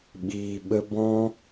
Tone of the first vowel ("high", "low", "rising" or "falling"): low